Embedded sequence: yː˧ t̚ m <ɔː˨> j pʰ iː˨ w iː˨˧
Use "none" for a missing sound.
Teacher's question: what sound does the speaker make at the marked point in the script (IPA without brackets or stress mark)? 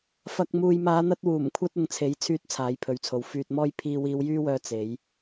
ɔː˧